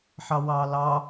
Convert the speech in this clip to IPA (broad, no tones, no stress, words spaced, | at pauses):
ħɑwɑːlɑ